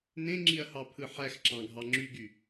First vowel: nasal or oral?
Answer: nasal